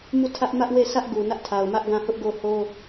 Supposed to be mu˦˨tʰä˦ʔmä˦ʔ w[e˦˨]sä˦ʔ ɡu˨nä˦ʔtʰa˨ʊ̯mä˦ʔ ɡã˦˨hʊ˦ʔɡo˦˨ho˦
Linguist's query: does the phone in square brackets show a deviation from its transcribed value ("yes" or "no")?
no